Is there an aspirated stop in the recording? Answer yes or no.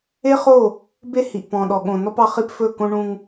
no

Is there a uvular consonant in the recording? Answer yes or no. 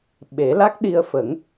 no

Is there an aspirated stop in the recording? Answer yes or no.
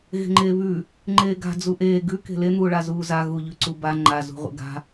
no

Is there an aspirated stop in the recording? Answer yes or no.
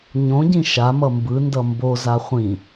no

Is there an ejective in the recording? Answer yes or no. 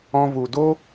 no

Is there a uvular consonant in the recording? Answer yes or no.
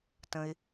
no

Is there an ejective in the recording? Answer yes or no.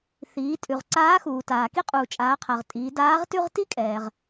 yes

